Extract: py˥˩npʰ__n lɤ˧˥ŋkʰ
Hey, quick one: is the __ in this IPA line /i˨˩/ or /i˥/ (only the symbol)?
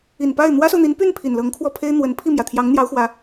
i˨˩